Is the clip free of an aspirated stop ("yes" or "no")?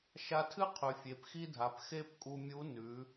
no